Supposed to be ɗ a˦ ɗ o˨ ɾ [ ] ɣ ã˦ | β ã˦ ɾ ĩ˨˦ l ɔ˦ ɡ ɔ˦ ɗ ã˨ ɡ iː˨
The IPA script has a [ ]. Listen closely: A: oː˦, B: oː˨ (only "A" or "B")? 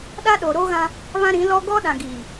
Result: A